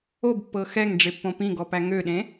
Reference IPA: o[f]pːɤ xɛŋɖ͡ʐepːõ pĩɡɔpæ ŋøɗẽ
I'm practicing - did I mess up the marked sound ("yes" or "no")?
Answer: yes